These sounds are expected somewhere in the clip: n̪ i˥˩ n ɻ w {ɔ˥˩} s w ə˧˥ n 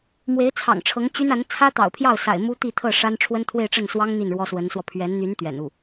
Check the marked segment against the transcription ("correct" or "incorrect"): incorrect